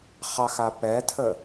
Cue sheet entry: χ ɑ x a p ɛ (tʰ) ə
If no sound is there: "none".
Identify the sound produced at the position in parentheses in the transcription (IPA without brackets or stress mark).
tʰ